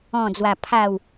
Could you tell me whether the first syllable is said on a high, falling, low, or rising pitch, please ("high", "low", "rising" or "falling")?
low